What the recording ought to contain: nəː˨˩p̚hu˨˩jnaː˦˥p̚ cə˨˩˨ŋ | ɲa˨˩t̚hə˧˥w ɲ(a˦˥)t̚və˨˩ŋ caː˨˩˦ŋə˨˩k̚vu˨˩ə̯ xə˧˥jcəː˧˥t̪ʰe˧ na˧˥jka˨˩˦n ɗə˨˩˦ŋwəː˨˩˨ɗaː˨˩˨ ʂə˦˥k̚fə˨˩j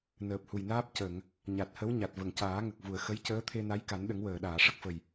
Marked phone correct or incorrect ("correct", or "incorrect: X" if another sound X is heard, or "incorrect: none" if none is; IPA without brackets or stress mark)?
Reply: incorrect: a˨˩